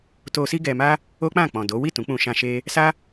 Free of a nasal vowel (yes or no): no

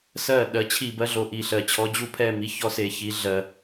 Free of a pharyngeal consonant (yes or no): yes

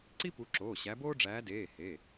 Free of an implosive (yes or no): yes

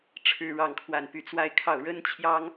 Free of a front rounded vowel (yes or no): no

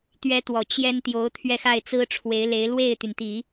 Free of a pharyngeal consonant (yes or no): yes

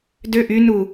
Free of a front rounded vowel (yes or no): no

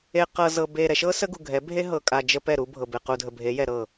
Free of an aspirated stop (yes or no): yes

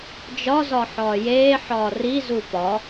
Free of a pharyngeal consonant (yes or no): no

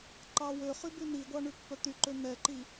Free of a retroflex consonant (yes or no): no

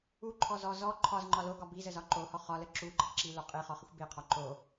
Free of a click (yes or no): no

